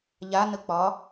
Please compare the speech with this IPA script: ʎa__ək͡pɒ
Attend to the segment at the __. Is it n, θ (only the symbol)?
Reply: n